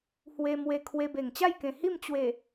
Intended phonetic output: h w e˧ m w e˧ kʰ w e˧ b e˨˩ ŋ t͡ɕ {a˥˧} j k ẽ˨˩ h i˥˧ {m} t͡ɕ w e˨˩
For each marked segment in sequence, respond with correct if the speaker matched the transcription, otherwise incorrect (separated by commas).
correct, correct